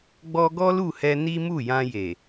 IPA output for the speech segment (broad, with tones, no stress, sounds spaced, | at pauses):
ɡ͡b ɔ˧ ɡ ɔ˦ l u˦˨ h ɛ˧ n i˦ m u˦˨ j ã˧ j e˨